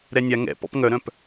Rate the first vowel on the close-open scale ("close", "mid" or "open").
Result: mid